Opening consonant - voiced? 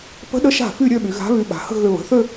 no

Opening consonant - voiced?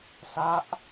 no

